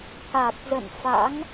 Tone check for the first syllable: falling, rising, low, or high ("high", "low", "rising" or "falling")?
low